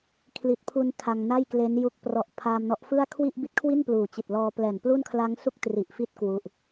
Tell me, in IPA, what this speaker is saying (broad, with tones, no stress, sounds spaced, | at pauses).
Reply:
kʰ l i˨˩ t̚ pʰ u˧ n tʰ a˧ ŋ n a˥˩ j k l e˦˥ n j u˦˥ k̚ p r ɔ˨˩ ʔ pʰ aː˧ m n ɔ˦˥ ʔ f ɯ˥˩ a̯ kʰ w i˥˩ ʔ b i˦˥ t̚ kʰ w i˥˩ n p l uː˨˩ t͡ɕ i˨˩ t̚ l ɔː˧ p l ɛː˨˩ n p l u˥˩ n kʰ l a˦˥ ŋ s u˥˩ k̚ t r i˨˩ ʔ f i˦˥ t̚ k w u˦˥ ʔ